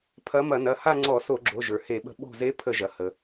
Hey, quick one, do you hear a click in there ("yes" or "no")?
yes